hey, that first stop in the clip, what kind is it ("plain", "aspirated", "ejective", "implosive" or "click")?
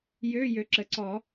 click